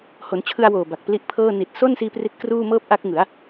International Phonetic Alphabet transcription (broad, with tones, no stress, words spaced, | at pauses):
ho˩˦nt͡ɕʰɯ˧a̯woː˨˩ ba˨˩k̚pli˦˥ʔpʰɤː˥˩ ni˨˩t̚ so˥˩nsiː˧ pri˦˥t̚kruː˥˩ mɤː˥˩p̚ʔa˦˥k̚ŋɯ˩˦a̯